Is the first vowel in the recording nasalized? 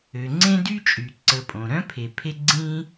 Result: no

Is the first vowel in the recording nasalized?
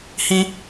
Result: yes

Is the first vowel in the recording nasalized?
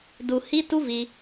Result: no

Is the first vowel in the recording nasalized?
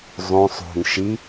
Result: yes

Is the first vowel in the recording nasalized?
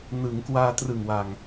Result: no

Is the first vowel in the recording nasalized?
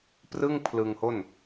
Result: no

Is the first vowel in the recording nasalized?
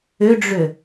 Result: no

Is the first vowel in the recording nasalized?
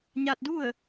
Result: no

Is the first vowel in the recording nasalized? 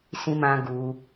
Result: yes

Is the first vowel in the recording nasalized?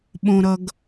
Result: yes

